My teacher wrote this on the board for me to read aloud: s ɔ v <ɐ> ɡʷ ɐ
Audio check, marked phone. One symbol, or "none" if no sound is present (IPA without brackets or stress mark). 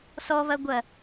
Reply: ɐ